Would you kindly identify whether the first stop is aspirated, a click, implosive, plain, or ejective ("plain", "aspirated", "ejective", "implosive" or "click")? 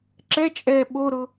click